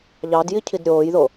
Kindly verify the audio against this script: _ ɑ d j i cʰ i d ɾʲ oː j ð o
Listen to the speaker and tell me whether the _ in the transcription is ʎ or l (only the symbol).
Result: ʎ